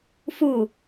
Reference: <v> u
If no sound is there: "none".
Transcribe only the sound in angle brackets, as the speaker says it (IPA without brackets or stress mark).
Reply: f